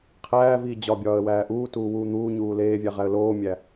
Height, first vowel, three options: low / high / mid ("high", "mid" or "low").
low